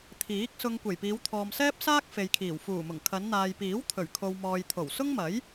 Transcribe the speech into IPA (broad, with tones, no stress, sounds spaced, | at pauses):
t̪ʰ iː˨˥ k̚ s ʊ˧ ŋ kʷ e˨˩ j p iː˨˧ w t̪ʰ ɔː˨ m s ɛː˥ p̚ s aː˥ k̚ f e˨ j kʰ iː˨˩ w f uː˨˩ m ʊ˨˩ ŋ kʰ ɐ˨˧ n n̪ aː˨ j p iː˨˥ w t̪ʰ ɵ˨˩ ɥ kʰ o˨ w m ɔː˨ j t̪ʰ o˨˩ w s ʊ˥ ŋ m ɐ˨˥ j